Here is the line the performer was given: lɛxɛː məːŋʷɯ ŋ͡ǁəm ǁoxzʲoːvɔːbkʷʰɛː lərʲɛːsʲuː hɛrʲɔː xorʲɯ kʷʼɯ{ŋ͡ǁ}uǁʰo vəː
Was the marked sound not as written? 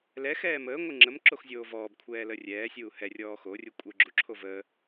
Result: yes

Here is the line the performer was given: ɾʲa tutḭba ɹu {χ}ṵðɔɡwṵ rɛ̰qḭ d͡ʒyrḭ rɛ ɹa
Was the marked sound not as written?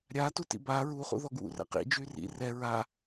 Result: no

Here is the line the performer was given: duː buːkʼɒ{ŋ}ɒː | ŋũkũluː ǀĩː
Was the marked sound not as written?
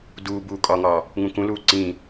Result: no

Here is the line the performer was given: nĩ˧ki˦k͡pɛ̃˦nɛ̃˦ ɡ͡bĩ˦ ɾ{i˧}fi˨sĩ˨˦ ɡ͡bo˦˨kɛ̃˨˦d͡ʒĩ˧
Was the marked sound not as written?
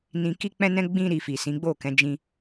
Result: no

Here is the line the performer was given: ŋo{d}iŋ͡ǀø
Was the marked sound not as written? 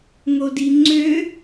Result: no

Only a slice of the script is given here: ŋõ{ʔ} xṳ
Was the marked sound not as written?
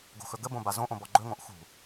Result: no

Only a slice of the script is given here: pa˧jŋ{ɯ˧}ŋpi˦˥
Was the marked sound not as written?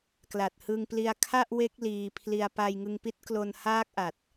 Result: no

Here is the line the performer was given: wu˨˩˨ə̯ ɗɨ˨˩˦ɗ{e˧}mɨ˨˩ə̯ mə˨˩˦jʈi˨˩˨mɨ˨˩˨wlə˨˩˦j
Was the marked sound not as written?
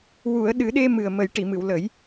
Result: no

